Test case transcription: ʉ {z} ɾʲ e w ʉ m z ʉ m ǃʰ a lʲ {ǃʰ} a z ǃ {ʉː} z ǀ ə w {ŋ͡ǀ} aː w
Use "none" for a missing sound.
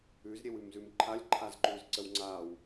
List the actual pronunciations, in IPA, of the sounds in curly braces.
z, ǃʰ, ʉː, ŋ͡ǀ

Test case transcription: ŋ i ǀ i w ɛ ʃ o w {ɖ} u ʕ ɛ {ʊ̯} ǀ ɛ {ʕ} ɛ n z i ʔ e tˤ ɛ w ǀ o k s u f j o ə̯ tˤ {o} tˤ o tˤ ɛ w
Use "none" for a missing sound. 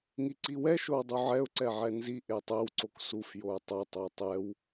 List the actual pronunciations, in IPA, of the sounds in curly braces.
dˤ, ʊ̯, ʕ, ɤ

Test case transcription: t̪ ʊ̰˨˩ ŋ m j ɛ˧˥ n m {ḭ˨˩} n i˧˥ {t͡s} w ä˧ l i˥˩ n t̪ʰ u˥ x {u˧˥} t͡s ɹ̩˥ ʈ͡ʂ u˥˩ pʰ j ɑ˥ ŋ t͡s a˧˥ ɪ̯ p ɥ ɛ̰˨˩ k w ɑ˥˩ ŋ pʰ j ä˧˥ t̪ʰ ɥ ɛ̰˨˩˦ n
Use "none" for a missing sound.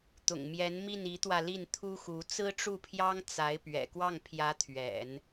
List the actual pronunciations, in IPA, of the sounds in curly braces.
i˥˩, t̪, u˧˥

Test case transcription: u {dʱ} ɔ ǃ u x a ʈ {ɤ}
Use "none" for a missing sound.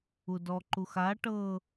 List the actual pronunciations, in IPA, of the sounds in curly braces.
d, ɤ

